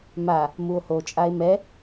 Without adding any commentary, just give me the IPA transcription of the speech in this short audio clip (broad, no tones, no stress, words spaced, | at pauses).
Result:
ma | muo̯hot͡ʃʼae̯ mɛ